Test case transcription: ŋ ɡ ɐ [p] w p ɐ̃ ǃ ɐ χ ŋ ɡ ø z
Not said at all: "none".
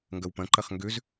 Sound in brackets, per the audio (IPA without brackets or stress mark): none